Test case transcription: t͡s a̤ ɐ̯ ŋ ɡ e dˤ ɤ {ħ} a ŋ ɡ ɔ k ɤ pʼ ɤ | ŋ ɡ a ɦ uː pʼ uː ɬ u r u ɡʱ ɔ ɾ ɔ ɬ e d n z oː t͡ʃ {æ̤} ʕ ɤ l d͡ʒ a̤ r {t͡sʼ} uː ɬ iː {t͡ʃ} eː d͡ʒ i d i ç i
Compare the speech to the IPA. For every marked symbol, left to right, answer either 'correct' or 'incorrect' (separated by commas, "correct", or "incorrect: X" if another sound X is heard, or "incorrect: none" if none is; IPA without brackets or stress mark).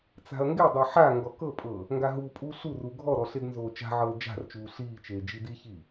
correct, incorrect: a̤, incorrect: t͡ʃ, correct